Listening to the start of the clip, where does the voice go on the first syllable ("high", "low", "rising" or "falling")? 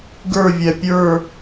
falling